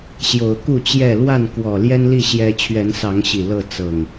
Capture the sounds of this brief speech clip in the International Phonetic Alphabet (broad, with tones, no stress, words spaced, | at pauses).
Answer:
ɕjo˨˩ʊ̯ku˥˨t͡ɕjɛ˥˨ lwa˥˨nkwɔ˨˩ ljɛ˦nli˥˨ ɕjɛ˦ t͡ɕʰɥɛ˨˦nsɑ˨˦ŋɕi˨˩ lɤ˥˨ t͡sɤ˨˩ŋ